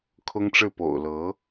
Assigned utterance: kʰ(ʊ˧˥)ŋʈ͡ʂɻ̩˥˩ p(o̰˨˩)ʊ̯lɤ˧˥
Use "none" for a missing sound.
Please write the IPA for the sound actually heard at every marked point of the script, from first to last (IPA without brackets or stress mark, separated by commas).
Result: ʊ˥, o̰˨˩